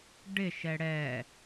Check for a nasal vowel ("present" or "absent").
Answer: absent